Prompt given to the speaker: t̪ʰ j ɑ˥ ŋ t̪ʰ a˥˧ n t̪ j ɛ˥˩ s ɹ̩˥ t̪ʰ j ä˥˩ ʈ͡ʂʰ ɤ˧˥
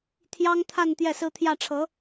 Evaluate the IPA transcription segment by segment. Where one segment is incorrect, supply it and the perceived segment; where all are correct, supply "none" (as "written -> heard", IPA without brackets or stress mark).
none